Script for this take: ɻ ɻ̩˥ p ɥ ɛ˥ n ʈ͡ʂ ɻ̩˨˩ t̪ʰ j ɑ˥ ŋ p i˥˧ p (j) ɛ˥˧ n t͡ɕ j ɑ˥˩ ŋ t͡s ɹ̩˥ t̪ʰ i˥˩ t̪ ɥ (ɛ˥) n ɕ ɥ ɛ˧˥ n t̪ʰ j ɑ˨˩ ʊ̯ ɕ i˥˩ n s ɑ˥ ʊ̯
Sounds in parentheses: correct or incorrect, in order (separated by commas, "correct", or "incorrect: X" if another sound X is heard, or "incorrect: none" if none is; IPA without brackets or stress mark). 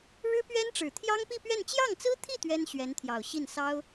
incorrect: ɥ, correct